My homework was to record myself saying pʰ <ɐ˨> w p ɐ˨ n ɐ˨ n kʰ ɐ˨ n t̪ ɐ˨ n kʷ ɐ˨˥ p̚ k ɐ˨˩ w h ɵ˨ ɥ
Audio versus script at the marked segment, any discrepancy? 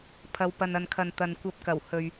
no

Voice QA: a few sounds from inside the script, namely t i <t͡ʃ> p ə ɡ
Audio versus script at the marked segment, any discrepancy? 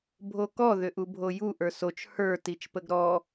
no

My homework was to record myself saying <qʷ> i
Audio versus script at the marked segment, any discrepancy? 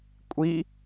yes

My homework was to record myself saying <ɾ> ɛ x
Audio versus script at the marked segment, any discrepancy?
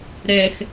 no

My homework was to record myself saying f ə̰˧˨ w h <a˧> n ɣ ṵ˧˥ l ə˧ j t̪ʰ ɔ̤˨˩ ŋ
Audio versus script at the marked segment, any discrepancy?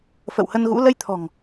yes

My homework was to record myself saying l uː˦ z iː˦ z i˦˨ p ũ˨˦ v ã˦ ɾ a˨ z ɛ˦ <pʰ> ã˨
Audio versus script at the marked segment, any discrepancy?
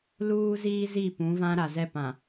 yes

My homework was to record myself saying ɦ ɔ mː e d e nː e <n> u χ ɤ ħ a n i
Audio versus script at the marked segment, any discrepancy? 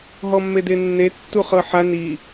yes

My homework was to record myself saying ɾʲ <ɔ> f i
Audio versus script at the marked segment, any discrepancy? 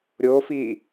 yes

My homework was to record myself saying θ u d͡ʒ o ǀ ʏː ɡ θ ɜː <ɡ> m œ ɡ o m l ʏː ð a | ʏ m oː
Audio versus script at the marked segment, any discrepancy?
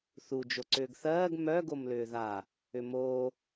no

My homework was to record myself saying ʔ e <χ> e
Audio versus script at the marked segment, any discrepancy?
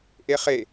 no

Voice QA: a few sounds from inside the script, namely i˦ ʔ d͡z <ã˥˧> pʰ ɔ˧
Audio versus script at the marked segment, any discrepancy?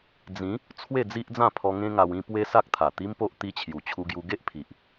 no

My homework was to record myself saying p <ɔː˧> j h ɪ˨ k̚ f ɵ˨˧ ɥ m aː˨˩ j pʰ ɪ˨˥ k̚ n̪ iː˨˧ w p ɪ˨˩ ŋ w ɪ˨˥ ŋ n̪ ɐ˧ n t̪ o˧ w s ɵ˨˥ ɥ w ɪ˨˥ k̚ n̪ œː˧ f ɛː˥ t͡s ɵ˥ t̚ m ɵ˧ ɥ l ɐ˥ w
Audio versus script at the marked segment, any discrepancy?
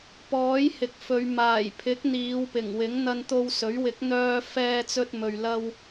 yes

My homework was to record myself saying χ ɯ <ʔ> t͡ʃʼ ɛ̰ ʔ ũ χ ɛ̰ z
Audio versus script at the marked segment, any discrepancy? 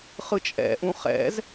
yes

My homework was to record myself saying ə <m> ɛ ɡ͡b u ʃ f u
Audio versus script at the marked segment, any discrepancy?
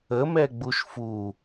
no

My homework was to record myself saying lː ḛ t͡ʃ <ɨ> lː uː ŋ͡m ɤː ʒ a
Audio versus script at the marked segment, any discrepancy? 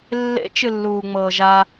no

